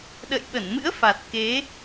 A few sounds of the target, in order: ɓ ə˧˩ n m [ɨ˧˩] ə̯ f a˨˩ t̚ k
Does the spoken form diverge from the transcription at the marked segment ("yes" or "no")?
yes